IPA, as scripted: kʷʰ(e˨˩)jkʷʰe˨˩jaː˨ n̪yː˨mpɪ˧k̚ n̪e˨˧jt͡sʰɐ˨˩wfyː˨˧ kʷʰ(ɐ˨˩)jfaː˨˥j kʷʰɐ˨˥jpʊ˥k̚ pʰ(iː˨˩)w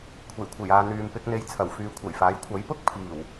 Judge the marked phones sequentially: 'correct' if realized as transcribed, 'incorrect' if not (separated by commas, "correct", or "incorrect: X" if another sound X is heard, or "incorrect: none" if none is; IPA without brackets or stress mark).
correct, correct, correct